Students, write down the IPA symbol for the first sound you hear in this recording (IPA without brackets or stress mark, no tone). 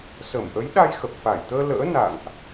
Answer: s